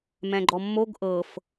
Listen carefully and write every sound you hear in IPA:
m ɛ̃ ɡ͡ǃ ɔ mː o ɡ ʔ ɤ f

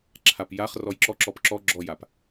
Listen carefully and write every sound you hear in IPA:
ǁʰ a p j a χ r ɔ j ǁ ɔ ǁ ɔ p ǁ ɔ ɡ͡ǁ ɔ j a p

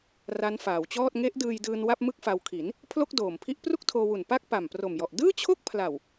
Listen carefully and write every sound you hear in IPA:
r a˦˥ n f aː˩˦ w t͡ɕ ɔː˥˩ t̚ ŋ e˦˥ ʔ d ɯː˧ j d ɯː˧ n w a˥˩ p̚ m ɯ˥˩ k̚ f a˧ w kʰ i˩˦ n | pʰ l o˥˩ k̚ d oː˨˩ m pʰ i˦˥ ʔ p r u˥˩ k̚ tʰ oː˧ w u˨˩ n p a˥˩ k̚ p a˨˩ m p r o˨˩ m j ɔ˨˩ ʔ d ɯː˥˩ t͡ɕʰ o˥˩ k̚ pʰ l a˨˩ w

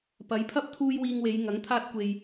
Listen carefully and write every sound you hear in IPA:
p ɐ˨˧ j pʰ ɐ˥ p̚ t̪ʰ uː˥ j w iː˧ ŋ w e˨˧ j ŋ ɐ˨˥ ŋ t̪ʰ aː˥ t̚ kʷ e˧ j

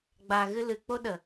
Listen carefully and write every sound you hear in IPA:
ɡ͡b a˨ ɣ ɨ˧ l ɨ˨ k͡p o˦ ɗ ə˨

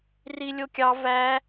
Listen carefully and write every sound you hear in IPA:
r i lʲ o kʲ ɑ v æ

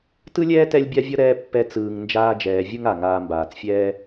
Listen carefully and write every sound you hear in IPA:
t ɯ˥ lʲ ɛː˥ t ɛ˦ lʲ bʲ a˥ vʲ ʌ˥ ɾ ɛː˦ pː ɛ˦ t͡s ɯː˨ ŋ n d͡ʒ aː˦ d͡ʒ ɛː˨ vʲ ɯ˥ ŋ a˩ ŋ aː˨ m b aː˩ t͡s fʲ ɛː˦

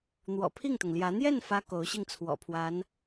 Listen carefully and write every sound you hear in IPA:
n̪ w ɔ̰˨˩ pʰ i˥˩ ŋ t̪ ʊ˩ ŋ l j ä˧˥ n̪ j ɛ˥˩ n f ä˥ k o˧˥ ʊ̯ ɕ i˥˩ ŋ t͡sʰ w ɔ̰˨˩ pʰ w a˧˥ n

